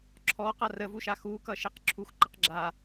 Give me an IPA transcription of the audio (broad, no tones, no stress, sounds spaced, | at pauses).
ǁʰ ɔ q a r ə v u ʃ a x u k ʌ ʃ e q ǁʰ u x ǃ ə q ɡ͡ǁ a